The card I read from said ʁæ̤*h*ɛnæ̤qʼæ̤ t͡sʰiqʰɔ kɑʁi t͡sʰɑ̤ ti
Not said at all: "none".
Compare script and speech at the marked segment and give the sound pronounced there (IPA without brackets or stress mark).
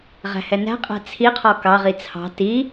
h